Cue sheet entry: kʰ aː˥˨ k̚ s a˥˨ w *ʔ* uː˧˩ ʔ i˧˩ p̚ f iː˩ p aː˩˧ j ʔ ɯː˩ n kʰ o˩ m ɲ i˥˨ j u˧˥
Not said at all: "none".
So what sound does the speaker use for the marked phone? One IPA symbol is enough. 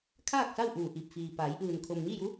ʔ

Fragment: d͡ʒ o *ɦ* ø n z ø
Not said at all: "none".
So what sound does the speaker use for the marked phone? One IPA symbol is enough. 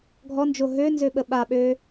ɦ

